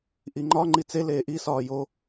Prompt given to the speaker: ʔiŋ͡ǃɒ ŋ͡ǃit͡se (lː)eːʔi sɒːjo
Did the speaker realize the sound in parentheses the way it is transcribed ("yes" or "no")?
no